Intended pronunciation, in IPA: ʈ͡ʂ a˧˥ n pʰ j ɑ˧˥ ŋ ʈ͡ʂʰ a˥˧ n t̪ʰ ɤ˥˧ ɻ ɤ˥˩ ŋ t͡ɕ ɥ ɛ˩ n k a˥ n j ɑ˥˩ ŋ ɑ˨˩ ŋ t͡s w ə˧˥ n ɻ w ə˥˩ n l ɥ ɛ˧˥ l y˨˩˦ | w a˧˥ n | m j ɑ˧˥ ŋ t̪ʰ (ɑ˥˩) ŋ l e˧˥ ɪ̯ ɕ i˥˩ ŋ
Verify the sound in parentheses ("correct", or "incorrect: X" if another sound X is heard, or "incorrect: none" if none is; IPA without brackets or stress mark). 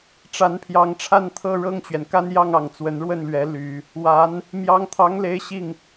incorrect: ɑ˧˥